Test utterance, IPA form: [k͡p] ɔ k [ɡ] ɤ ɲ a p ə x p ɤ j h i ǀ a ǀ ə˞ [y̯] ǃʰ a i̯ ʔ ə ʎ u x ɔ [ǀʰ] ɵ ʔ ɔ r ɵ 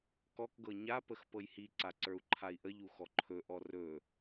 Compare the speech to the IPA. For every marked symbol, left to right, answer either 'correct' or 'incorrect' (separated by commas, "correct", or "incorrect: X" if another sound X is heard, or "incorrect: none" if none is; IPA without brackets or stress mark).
incorrect: k, correct, incorrect: u̯, incorrect: ǃʰ